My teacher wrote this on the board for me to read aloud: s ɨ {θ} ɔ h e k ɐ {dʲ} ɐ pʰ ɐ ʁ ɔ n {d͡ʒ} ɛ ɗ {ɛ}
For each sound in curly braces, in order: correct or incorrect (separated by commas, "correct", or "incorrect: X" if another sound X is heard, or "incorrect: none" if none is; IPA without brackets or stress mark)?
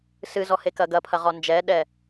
incorrect: z, incorrect: ɡ, correct, correct